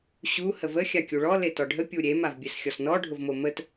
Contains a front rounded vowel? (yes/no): no